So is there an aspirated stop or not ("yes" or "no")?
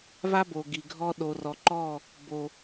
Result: no